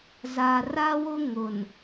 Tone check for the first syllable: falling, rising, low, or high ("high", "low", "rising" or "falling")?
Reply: low